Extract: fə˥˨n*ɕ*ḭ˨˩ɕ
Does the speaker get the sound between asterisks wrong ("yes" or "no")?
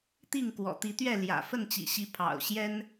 yes